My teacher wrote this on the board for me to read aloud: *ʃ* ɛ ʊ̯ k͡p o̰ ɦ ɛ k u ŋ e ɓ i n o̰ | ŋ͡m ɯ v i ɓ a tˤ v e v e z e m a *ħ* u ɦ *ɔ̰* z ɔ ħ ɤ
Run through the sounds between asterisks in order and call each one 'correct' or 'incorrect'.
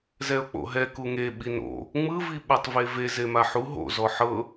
incorrect, correct, incorrect

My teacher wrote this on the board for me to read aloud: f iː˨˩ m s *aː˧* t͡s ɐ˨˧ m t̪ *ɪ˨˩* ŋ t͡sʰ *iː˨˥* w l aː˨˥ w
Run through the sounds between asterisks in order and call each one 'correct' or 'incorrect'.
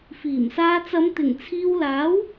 correct, correct, incorrect

